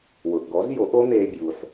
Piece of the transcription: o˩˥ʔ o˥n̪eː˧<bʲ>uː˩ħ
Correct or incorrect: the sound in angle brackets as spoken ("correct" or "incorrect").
correct